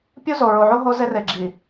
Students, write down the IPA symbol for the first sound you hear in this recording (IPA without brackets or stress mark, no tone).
pʲ